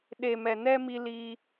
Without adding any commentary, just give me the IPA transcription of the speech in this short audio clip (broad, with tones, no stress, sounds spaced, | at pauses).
ɗ e˨ m ɛ˨ n ɛ˦ m i˧ l i˧